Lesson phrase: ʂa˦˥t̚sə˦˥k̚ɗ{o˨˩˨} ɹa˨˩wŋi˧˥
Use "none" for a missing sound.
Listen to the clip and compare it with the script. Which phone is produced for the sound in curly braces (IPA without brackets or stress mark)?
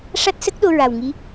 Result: o˧